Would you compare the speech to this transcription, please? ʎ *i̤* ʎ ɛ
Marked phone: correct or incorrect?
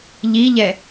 incorrect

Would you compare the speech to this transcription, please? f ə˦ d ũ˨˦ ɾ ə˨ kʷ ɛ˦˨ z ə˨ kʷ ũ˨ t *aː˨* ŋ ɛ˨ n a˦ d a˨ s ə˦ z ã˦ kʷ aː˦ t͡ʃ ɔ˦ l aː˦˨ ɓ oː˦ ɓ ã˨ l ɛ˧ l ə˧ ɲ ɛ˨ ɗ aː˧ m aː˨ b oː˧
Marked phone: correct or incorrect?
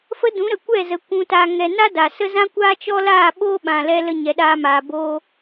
correct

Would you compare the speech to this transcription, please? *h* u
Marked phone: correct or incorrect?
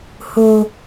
correct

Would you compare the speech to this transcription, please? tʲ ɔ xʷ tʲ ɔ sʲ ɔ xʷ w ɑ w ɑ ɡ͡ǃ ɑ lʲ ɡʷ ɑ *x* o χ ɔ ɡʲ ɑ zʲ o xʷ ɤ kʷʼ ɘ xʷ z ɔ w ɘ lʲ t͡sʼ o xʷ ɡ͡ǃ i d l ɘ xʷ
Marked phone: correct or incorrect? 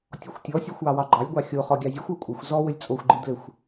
incorrect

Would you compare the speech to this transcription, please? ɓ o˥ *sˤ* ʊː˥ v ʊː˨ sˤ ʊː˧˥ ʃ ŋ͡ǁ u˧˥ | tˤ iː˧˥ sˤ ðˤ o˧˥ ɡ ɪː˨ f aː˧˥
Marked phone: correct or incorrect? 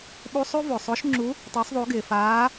correct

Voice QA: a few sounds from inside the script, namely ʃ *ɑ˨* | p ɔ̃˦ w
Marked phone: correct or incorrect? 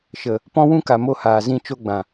incorrect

